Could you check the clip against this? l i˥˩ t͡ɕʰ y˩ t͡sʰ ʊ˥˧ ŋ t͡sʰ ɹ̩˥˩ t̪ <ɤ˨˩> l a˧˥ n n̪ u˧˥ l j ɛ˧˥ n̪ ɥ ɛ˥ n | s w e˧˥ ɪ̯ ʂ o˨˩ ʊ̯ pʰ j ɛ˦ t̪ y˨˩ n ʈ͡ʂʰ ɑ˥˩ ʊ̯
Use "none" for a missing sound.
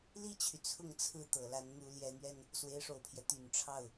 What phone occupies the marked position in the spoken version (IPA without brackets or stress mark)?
ɤ˨˩